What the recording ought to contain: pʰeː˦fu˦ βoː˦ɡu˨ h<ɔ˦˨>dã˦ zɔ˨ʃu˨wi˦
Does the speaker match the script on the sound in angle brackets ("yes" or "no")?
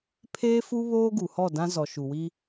yes